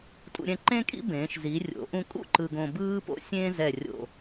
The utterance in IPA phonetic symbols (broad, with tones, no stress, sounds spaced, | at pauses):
tʼ ṵ˧ ɾʲ ɛ̃˧ ǃ ẽ˥ kʼ ḭ˥ b ẽː˩˧ ʃ z i˩˧ rʲ o̰˩˧ ʔ ũ˧ kʼ ṵ˥˧ ǃ ɯ˧ ɡ õ˧ b ɯː˥ p o̰˧ sʲ ẽː˥ z ɛ˧˩ rʲ o̰˧˩